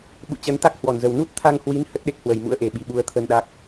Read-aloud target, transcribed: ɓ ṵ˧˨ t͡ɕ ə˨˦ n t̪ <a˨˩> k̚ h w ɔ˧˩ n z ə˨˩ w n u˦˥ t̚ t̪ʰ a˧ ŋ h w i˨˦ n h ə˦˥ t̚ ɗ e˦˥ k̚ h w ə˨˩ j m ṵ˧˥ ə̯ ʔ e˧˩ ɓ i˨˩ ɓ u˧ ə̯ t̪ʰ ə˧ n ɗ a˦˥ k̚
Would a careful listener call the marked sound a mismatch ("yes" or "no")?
yes